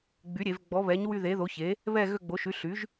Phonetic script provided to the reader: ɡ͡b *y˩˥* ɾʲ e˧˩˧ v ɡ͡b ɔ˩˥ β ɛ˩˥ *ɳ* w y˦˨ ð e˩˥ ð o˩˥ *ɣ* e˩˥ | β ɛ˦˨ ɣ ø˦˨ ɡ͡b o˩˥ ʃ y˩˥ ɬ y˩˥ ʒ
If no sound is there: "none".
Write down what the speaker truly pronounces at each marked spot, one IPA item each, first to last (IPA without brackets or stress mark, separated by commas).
y˩˥, ɲ, ç